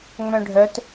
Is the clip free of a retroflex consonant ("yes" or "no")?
no